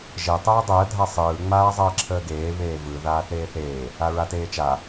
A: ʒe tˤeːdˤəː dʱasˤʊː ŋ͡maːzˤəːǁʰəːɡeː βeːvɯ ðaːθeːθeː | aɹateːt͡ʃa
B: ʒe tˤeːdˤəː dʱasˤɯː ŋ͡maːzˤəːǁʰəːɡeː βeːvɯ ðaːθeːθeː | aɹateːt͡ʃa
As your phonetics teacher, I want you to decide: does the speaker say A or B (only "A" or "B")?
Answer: B